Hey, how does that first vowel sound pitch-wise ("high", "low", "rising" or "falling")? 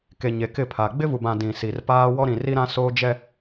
low